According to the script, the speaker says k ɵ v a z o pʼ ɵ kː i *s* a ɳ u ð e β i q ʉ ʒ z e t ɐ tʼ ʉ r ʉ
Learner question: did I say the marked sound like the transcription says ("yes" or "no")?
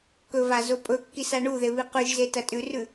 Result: yes